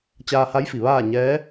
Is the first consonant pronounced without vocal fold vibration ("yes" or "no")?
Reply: yes